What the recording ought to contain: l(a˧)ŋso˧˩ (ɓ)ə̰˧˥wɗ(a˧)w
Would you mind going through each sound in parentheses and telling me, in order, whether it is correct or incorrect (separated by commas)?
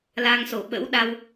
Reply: correct, correct, correct